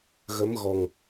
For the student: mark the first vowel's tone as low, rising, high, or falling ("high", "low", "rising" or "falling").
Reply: rising